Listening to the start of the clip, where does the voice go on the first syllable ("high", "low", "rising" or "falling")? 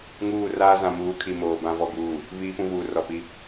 falling